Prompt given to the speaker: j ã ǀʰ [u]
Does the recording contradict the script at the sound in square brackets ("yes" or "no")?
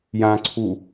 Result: no